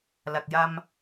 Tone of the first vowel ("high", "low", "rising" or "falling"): low